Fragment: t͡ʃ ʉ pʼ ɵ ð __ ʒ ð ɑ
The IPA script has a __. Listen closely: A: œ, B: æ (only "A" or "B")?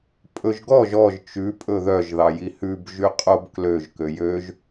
A